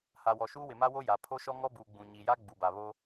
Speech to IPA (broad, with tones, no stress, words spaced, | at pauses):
ha˨wɔ˨ʃuː˦ wɪ˨ma˦wo˦ ja˨ pʰo˦ʃɔ˦ ŋɔ˦buː˨ ɡ͡bũ˨ ɲi˨ja˦ ɡ͡bu˨ba˨ βo˦